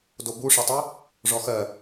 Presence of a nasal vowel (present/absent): absent